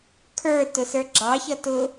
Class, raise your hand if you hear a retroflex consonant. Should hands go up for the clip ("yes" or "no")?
no